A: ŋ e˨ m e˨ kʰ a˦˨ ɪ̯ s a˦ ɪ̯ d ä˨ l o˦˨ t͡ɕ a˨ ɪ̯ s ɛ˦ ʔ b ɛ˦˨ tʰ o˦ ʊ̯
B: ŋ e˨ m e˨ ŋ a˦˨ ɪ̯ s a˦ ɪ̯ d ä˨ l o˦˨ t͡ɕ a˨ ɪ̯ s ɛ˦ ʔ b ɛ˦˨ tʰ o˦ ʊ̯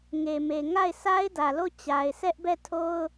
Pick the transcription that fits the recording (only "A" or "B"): B